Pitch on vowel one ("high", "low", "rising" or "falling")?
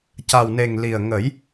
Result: low